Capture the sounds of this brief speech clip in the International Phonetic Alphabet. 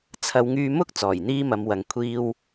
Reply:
t͡sʰ ɐ˨˧ w ŋ yː˧ m ʊ˥ k̚ t͡s ɔː˨˩ j n̪ iː˥ m ɐ˨˧ m w ɐ˨ ŋ kʷʰ iː˧ w

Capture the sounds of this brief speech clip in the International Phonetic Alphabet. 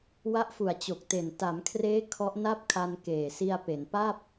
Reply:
w a˦˥ ʔ f u˨˩ a̯ t͡ɕ o˨˩ k̚ t e˨˩ n t a˩˦ m kʰ r eː˦˥ kʰ ɔ˦˥ ʔ n a˥˩ p̚ kʰ a˧ n k eː˨˩ s i˧ a̯ p e˩˦ n p a˥˩ p̚

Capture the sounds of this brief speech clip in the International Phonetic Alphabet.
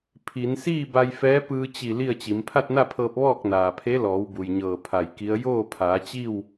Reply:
pʰ i˩˧ n s iː˥˨ b a˧ j f ɛː˧˥ p ɯː˧ t͡ɕ i˧˩ l i˥˨ ə̯ t͡ɕ i˩˧ m pʰ a˥˨ t̚ n a˥˨ pʰ ɤː˧ p̚ ʋ ɔː˥˨ k̚ n aː˩ pʰ e˧˥ l ɔː˩˧ w b u˩ j ɲ ɤː˧˩ pʰ a˧˩ j k i˧˥ ə̯ j oː˥˨ pʰ aː˩˧ t͡ɕ i˥˨ w

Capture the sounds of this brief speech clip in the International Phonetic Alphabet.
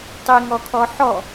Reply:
tˤ i ŋ ɔ kʰ ɔ ħ ɔ

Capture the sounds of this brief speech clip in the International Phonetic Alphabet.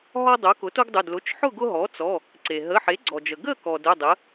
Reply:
ɦ ɔ˦ dˤ o˩˥ k ʊ˩˥ t o˦ ɡ dˤ ʊ˩˧˩ d l ʊ˩˧˩ t͡ʃ ħ ʊ˥˨ ɡ ʊ˦ ɦ ɔ˩˥ t͡s ɔ˩˧˩ | ǀ e˩ ɦ ə˩˧˩ ħ e˩˥ ɡ͡ǀ ɔ˩ d͡ʒ ə˩ ɡ ə˥˨ k ɔ˩ d ʊ˩˧˩ dˤ ə˩˥

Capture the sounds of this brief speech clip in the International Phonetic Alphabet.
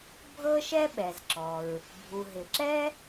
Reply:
bʱ ɤ˥ ʃ ɛ˥ ɓ ɛ˩ z ǁ ɔ˩ ɹ | bʱ u˩ ɦ ɪ˩ ǁ ɛ˥

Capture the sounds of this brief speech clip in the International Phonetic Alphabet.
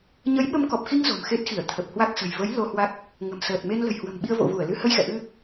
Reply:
ɲ ə˨˦ j ɓ ə˧ m k ɔ˨˩ p̚ x i˧ ŋ z o̤˨˩ m x e˦˥ t̚ x i˧˩ ə̯ t̪ʰ ə˨˩ p̚ h w a˦˥ k̚ s ə̤˨˩ j v ə˨˦ j l o˧ h w a˦˥ k̚ | ŋ ə̤˨˩ m s əː˨˩ t̚ m e˧ n l ə̤˨˩ j h w ə̤˨˩ m ɓ i˧ ə̯ v o̰˧˨ v u˧˩ ə̯ l ɨ˧ h ə˧ j x ɛ̰˧˨ ʔ ɨ˧

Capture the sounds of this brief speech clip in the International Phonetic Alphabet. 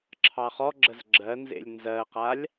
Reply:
ǁʰ ɑ χ ɔ ɡ͡ǁ ə z ɡ͡ǁ ɜ n z ḛ lʲ n z ɜ q a lʲ

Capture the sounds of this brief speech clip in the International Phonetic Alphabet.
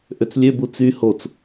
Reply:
ʔ ø t͡s lʲ ø b u t͡s y h o t͡s

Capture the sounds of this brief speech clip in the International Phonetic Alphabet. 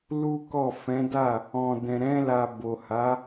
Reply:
l u˦ k ɔ˦˨ f ɛ̃˨˦ d a˦˨ | ɔ̃˨ d ɛ̃˨ ɾ ɛ̃˧ l a˨ b o˨ h a˨˦

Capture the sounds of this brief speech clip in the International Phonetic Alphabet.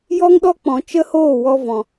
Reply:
j ɔ˦ ŋ ɗ ɔ˦ k͡p ɔ̃˨ t͡ʃ ə˦ h oː˦˨ w ɔ˧ v ɔ̃˨

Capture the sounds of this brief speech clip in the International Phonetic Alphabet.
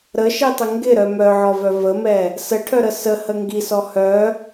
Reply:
ɾ ə ʃ i tˤ ə ŋ ɡ ɪ ɾ œ m œ ʕ ɔ v œ v ə m ɛ | s ə ʈʰ œ ɾ ə s ə h ə ŋ ɡ i s ɔ h œ

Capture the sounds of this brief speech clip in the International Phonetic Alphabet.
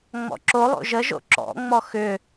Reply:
ŋ͡m ɔ̰ ǁ o lˠ o̰ ʒ ə ʒ o̰ ǁ ɔ̰ ŋ͡m ɔ x ʏ

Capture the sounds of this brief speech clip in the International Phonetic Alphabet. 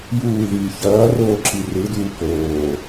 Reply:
j uː ð iː ç ʌː r oː ǁ i r ɯ d uː k oː

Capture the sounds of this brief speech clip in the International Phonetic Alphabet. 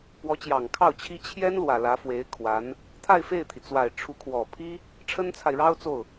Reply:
p w ɔ˧˥ t͡ɕ j ɑ˨˩ ŋ kʰ ɑ˥˩ ʊ̯ t͡ɕʰ i˥ t͡ɕʰ j ɛ˥ n l w ä˨˩ l ä˧˥ f w e˧˥ ɪ̯ kʰ w a˧˥ n | t̪ʰ a˥˧ ɪ̯ f e˥˩ ɪ̯ t̪ʰ i˩ t͡s w a˨˩ ɪ̯ ʈ͡ʂʰ u˧˥ kʰ w ɔ˨˩ pʰ i˥ | ʈ͡ʂʰ ə˥ n t͡sʰ a˨ ɪ̯ ɻ ɑ˥ ʊ̯ t͡s o˥˩ ʊ̯

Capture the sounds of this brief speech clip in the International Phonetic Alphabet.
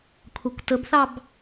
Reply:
kʷʰ ɑ kʷ t ə b θ ɑ b

